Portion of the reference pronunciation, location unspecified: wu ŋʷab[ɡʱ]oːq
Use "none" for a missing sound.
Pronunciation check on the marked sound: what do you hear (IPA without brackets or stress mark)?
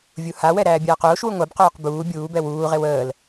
q